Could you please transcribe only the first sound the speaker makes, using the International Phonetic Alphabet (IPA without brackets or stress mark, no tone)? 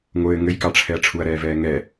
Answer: ŋʷ